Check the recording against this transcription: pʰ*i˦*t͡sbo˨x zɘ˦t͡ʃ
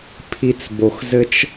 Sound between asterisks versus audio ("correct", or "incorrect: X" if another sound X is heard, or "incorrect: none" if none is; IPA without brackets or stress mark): incorrect: i˨